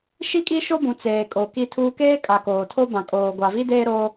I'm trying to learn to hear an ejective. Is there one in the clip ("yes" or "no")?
yes